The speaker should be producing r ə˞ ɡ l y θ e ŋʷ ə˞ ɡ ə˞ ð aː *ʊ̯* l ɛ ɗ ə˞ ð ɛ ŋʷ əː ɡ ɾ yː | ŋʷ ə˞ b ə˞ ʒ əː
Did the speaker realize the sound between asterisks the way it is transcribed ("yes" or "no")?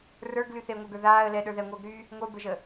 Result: no